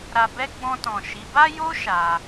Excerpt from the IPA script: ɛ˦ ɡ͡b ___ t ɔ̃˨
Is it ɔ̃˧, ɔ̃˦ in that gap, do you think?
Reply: ɔ̃˧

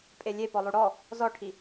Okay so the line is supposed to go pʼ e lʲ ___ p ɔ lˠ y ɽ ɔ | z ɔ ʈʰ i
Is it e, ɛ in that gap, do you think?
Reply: e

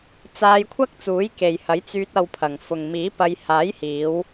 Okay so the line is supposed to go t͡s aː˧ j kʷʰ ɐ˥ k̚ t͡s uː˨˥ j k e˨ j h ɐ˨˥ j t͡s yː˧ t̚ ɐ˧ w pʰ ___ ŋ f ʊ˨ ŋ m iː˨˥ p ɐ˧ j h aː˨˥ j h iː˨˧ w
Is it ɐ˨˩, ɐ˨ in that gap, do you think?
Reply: ɐ˨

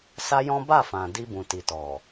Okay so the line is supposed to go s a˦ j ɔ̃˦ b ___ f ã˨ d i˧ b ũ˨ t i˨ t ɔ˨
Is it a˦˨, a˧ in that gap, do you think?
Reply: a˦˨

